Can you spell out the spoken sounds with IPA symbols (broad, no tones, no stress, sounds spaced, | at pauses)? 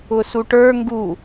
ʊ s u ʈ ə˞ ŋ ɡ u